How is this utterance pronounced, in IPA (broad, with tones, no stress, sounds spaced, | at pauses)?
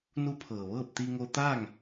n u˧˥ pʰ ɤː˩ ʋ ɤː˥˨ p̚ t̪ i˧ ŋ o˧ t̪ aː˥˨ ŋ